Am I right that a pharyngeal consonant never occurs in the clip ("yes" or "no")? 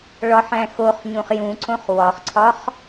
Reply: no